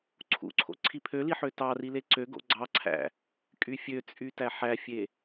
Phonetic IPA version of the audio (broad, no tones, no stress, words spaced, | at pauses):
ǀʰṵǀʰo̰ ǀʰipʰøliħø tɑrile ǀøɡo̰ ɡ͡ǀɑǀʰæ̰ | kʼyfʲøt͡sʼytæ ħæfʲe